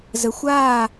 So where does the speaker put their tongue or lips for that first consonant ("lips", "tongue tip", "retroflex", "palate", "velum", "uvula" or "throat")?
tongue tip